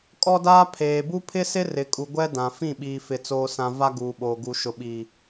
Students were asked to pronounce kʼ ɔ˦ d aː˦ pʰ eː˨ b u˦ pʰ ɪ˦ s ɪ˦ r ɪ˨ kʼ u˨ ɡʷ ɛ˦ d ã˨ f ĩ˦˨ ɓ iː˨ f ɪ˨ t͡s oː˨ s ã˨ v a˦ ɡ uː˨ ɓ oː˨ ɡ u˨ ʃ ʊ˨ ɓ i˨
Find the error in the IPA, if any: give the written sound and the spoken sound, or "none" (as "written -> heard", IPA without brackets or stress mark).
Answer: none